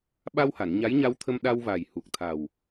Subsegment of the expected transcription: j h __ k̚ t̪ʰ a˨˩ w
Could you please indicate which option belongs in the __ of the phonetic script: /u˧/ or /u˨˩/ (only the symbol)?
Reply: u˨˩